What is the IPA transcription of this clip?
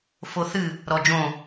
f o θ ɨ | ɾ ɔ d͡ʒ õ

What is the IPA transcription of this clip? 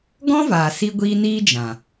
ɡ ɔ̃˦ v aː˨ s i˦ ɡʷ iː˦ n iː˦ d͡ʒ ã˨

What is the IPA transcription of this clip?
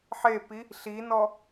ħ e p i | ɬ i n ɔ

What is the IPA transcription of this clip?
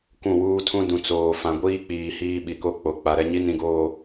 kʷ ũ˦˨ w uː˦ tʰ ũ˦ d ũ˨ t͡s oː˨ f ã˨ ɡʷ iː˦ k͡p iː˨ h iː˦ ɓ i˨ k o˦ k͡p o˨ k͡p a˨ ɾ ɛ˦ ɲ i˦ n ĩ˨ ɡ oː˨

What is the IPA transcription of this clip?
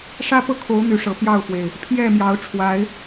ʂ ä˦ p ɤ˥˨ kʰ o˨˦ ʊ̯ n̪ y˨˦ ʂ ɤ˨˦ p j ɑ˥˨ ʊ̯ f w e˩ ɪ̯ | pʰ j ɛ˥˨ m j ɑ˨˦ ʊ̯ ʈ͡ʂʰ w a˨˦ ɪ̯

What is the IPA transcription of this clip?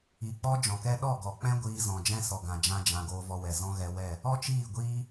i˨ k͡p ɔ˦ d͡ʒ ɔ̃˨ k ɛ˦ ɗ ɔ˦˨ ɡ ɔ˨ k͡p ɛ̃˦ ɡʷ iː˧ z ɔ̃˨ d͡ʒ ɛ̃˦ s ɔ˨ ɡ ã˨ d͡ʒ ã˧ d͡ʒ ã˨ ɡ oː˧ v ɔ˧ w ɛ˨ z ɔ̃˦ ɣ ɛ˧ w ɛ˦˨ | ɔ˦ t͡ʃ iː˦˨ ɡʷ iː˦

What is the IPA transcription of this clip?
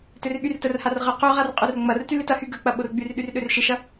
t ø r ɓ y r t ə r h a r ʁ ə q ø ʁ a r qʼ ø r ŋ͡m ɐ r t y l ɪ t ɐ h y ɡ ə k͡p ɐ ɓ o r ɡ͡b y r ɗ y r ɗ ø r ʃ ɪ ʃ ɐ

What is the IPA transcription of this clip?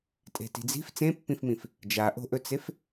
tʼ e̤ t i̤ d͡z i̤ f t͡s ẽ pː ĩ f m ĩ f | d͡ʒ a ʔ o̤ ʔ ɵ t͡s e f

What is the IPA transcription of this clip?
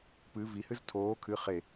p ɨ v i h ɨ z tʰ oː kʰ ɨ χ e

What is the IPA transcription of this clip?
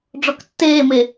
ɖ͡ʐ ɔ k tː eː m e

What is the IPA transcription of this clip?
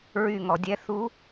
ɹ y˦˨ ŋ ɔ˧˩˧ dʲ ɛ˧˥ θ u˧˥

